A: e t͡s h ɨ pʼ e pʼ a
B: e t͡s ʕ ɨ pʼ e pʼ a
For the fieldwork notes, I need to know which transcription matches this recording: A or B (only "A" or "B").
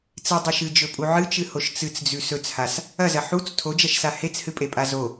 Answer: A